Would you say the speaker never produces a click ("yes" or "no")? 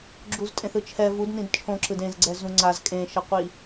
no